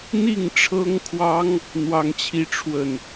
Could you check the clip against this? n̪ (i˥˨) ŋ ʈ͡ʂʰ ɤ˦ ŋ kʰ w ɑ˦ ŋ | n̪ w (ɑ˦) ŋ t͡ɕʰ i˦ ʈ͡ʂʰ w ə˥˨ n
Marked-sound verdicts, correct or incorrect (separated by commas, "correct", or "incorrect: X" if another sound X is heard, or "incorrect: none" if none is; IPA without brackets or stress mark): correct, correct